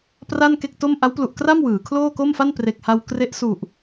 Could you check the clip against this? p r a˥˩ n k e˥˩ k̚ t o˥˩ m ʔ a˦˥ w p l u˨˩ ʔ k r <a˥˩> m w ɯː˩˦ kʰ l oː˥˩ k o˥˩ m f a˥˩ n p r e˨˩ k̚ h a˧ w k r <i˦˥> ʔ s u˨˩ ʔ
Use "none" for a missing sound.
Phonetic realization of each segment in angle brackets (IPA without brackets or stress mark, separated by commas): a˥˩, e˦˥